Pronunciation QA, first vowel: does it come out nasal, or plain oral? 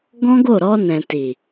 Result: nasal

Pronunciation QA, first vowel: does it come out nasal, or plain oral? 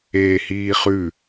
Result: oral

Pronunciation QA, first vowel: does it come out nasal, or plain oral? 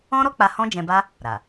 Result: nasal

